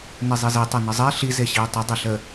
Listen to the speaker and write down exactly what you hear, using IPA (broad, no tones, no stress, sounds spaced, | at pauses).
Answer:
n e zˤ e z e tˤ ɛ n ə zˤ ɛ ɬ i z e ɕ i u̯ tˤ ə dˤ ɛ ɬ ə